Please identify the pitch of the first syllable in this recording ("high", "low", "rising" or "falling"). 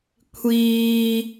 low